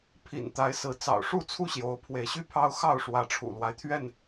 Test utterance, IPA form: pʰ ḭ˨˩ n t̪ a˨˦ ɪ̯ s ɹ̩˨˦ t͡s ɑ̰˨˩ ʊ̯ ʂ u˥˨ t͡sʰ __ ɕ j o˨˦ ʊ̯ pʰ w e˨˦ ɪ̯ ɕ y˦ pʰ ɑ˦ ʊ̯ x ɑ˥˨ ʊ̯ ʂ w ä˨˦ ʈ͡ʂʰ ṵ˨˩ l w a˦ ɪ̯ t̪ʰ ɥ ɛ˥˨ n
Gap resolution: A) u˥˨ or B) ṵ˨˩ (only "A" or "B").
A